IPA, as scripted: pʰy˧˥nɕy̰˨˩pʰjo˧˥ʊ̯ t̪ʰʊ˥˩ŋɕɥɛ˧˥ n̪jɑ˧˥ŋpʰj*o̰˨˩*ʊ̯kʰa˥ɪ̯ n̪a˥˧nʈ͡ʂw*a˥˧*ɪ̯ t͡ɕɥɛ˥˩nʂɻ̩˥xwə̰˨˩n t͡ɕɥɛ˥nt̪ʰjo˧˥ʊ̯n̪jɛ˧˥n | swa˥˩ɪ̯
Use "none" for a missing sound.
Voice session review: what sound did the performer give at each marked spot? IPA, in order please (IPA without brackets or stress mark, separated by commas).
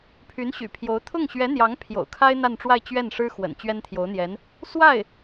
o̰˨˩, a˥˧